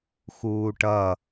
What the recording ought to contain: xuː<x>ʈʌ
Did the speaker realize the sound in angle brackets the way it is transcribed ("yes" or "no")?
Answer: no